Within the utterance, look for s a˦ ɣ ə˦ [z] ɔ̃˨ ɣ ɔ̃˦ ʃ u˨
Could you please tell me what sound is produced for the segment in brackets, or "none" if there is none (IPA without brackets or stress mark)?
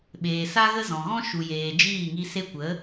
z